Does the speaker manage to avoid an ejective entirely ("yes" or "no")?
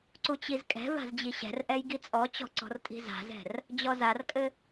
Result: no